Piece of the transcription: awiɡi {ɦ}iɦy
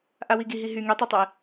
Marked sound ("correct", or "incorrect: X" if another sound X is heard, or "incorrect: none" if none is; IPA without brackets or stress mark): correct